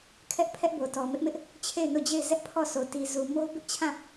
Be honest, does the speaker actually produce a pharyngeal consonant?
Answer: no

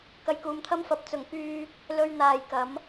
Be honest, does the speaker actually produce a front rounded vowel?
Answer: yes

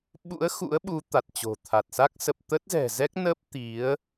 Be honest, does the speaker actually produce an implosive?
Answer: yes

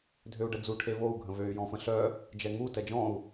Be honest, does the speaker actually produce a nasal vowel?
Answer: yes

